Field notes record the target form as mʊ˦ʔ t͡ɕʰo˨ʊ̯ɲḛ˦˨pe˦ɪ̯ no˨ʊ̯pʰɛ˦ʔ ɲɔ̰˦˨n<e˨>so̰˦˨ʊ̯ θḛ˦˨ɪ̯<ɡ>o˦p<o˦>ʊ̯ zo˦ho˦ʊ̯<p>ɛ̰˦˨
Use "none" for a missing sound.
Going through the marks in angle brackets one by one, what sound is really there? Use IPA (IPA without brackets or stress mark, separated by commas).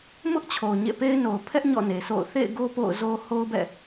e˨, ɡ, o̰˦˨, b